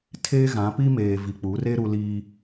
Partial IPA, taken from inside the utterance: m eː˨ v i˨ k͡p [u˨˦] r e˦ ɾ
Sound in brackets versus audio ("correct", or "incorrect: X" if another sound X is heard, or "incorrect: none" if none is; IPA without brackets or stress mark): correct